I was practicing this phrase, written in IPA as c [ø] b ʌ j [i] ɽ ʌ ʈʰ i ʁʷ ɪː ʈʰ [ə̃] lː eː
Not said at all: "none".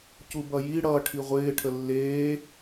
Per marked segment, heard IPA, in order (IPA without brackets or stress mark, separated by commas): u, i, ə